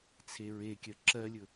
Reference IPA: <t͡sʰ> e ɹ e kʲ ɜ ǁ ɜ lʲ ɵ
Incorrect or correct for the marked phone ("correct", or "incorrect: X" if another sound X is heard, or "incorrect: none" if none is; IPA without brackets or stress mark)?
correct